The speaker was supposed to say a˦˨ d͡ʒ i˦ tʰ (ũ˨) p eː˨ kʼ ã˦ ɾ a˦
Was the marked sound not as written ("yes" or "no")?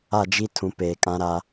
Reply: no